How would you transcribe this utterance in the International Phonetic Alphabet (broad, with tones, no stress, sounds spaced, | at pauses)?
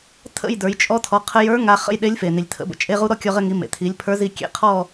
tʰ ə̰˥˧ j d ə˞˩˧ j t͡ʃʼ ɔ˧ tʰ ɔ˩˧ qʰ ə˧ j ə˞˧˥ ŋ a˧ χ ə̰˥˧ j ɗ e˧˥ lʲ f e˩ n i˩ lʲ tʰ ə̰˩˧ b ə̰˩ t͡ʃʼ e˧ ʁ u˧ ɾ ɔ˥˧ kʲ ɔ˧ ʁ ɘ˧ ŋ i˩˧ m ḛ˩ tʰ i˩˧ lʲ pʰ ə˞˧˥ z i˧ kʲ ḛ˧˥ qʰ ɔ˥˧